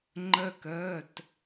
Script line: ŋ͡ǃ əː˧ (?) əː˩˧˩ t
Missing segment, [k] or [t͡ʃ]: k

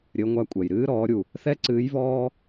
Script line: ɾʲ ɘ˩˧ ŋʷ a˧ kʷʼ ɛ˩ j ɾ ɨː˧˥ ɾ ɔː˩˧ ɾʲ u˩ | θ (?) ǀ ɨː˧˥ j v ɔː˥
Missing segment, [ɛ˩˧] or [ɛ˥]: ɛ˥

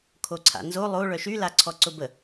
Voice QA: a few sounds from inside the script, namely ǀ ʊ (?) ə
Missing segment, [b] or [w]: b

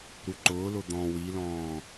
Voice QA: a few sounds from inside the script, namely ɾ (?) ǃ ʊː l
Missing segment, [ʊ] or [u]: u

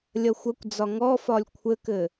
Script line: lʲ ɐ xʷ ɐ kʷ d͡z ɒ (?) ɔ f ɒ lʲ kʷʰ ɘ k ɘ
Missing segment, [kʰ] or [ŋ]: ŋ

